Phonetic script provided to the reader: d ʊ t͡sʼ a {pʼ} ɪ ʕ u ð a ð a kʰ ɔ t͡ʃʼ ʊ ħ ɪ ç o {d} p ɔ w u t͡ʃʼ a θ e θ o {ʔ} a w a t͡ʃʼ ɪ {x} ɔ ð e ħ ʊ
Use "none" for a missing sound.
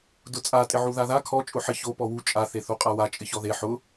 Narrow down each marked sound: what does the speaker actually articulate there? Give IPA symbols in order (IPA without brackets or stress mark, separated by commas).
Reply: tʼ, none, qʼ, ç